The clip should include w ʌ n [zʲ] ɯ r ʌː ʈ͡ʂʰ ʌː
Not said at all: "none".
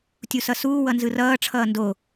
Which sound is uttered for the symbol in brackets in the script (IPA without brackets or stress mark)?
z